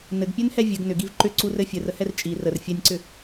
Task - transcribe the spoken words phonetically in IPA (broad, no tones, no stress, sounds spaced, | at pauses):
n ɘ ɡ pʲ ø n h ɛ vʲ ɘ ɡ n ʏ ɡ i v ǃ ʏ ǀ u r ɘ fʲ ɘ r ə h ɛ r t͡ʃʼ i r ə r fʲ ɛ nʲ ǀ ʏ